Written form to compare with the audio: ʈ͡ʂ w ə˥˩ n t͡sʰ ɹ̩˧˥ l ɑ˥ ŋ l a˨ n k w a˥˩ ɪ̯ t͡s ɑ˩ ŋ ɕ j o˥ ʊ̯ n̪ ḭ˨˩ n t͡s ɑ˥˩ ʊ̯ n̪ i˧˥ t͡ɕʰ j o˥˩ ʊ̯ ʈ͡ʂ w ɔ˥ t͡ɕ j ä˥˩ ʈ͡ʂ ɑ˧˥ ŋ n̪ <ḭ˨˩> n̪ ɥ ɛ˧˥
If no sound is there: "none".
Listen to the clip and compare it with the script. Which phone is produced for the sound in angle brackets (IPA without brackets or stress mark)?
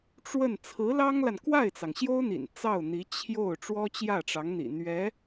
ḭ˨˩